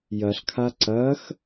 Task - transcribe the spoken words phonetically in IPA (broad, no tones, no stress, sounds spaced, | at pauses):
j ɐ ɬ kʰ a ǀ ɐ x